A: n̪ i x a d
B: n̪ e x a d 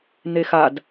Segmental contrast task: B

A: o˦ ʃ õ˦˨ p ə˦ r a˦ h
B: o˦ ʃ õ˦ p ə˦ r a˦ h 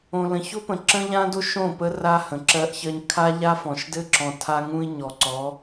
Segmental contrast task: A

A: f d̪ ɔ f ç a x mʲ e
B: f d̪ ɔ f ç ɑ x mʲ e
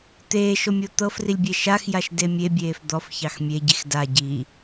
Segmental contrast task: B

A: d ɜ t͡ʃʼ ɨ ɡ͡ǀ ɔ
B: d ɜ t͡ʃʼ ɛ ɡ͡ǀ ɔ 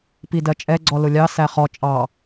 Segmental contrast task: B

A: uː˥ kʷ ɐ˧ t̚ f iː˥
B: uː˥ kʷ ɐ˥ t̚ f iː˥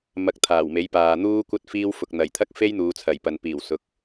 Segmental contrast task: B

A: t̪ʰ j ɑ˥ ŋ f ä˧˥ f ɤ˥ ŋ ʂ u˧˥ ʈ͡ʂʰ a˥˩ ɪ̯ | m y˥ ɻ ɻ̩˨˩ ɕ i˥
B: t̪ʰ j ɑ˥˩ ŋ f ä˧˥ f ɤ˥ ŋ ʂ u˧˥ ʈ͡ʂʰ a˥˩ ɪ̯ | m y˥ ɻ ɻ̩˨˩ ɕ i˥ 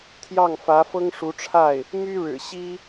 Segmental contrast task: B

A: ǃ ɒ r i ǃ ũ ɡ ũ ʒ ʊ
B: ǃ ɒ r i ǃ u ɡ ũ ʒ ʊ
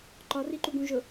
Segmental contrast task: B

